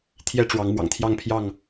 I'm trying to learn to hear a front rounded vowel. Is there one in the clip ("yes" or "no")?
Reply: no